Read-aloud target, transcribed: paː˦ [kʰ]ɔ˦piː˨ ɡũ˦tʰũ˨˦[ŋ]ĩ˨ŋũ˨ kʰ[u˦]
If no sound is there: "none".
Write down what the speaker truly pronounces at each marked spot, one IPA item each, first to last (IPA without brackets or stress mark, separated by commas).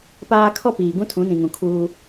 kʰ, n, uː˦